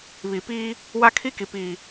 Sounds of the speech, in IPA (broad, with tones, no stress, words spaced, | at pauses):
βi˨piː˦ | wa˦kʰi˦ki˨ pi˨